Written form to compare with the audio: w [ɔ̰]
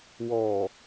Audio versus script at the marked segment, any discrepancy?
yes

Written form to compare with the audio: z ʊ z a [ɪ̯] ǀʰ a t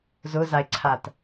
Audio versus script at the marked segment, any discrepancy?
no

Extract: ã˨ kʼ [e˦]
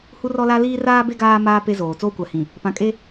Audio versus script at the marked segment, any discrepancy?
no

